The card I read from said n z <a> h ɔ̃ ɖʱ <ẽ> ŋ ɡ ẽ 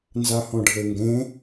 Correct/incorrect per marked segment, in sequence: correct, incorrect: e

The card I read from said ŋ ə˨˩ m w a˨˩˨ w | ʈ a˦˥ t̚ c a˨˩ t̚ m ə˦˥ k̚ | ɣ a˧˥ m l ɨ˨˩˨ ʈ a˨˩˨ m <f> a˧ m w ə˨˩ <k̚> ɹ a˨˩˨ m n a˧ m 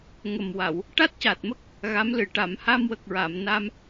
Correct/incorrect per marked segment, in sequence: incorrect: h, correct

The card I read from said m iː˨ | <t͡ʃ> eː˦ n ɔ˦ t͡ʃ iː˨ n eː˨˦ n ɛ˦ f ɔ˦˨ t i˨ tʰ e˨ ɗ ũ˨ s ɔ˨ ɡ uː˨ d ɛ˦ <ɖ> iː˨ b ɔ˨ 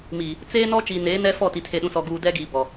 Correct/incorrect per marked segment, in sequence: incorrect: t͡s, incorrect: ɡ

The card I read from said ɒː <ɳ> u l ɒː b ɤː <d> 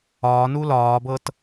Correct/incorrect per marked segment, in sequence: incorrect: n, incorrect: t

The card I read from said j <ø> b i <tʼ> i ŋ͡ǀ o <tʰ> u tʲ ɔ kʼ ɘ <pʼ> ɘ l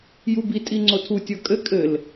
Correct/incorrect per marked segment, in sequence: incorrect: u, correct, correct, incorrect: kʼ

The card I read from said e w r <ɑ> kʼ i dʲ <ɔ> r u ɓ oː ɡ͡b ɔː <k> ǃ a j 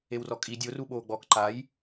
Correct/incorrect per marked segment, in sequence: incorrect: ɔ, incorrect: o, correct

